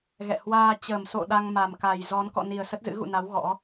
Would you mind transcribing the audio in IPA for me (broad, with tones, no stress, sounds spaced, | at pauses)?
ɣ ɛ̰˧˨ h w aː˧ t͡ɕ ə˨˩ m s o̰˧˨ ɗ a˧ ŋ m a˨˩ m k a˨˩ j z ɔ˨˦ n k ɔ̰˧˨ n i˨˩ ə̯ s ə˦˥ t̚ z ɨ̰˧˥ ɣ ṵ˧˨ n a˨˦ w ɣ ɔ̰˧˥